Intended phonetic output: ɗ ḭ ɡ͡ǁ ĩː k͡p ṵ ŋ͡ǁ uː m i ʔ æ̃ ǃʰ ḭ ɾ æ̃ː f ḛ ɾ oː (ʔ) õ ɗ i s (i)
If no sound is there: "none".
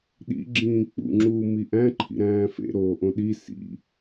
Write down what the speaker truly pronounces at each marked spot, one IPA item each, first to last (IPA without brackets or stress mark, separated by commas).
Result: ʔ, ḭ